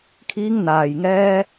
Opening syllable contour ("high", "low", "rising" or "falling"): high